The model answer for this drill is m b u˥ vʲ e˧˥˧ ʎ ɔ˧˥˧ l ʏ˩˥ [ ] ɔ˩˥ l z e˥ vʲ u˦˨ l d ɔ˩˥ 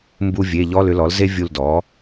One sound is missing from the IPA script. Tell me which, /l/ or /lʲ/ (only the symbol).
l